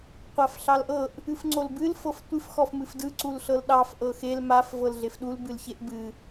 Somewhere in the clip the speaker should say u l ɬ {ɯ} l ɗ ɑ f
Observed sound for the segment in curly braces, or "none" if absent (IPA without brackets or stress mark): ɤ